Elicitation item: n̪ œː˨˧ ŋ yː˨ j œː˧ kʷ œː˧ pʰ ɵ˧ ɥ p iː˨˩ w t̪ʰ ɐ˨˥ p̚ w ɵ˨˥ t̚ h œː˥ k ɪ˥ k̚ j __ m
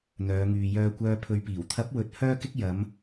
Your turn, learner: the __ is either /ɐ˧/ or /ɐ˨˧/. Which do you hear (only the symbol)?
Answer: ɐ˨˧